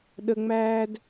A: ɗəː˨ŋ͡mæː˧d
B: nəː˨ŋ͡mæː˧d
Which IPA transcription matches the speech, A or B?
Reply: A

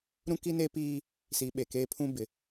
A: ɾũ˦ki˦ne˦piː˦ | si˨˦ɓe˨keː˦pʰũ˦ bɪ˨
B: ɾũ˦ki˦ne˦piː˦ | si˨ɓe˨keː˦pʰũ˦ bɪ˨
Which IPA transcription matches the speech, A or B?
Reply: A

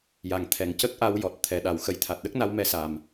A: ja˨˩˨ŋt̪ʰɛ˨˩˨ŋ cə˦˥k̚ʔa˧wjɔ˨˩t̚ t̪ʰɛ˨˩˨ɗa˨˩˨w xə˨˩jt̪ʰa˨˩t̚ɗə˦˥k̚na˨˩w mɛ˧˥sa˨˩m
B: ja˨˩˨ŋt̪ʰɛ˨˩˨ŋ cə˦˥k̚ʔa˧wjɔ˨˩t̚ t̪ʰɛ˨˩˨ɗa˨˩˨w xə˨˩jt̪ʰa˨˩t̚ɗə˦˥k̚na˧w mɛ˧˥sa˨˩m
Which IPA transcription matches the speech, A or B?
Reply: B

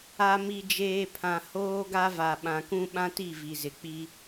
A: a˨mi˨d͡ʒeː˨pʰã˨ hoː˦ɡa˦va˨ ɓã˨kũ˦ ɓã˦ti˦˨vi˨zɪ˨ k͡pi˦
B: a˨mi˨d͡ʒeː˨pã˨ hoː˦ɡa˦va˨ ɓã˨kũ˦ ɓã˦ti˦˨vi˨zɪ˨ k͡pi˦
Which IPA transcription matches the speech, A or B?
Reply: A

